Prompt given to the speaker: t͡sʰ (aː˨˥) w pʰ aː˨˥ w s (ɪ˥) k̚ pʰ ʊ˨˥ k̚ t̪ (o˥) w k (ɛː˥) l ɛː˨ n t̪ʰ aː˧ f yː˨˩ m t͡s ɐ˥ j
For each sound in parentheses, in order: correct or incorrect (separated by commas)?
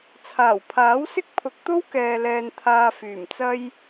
incorrect, correct, correct, incorrect